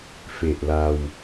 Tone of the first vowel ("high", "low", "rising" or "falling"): low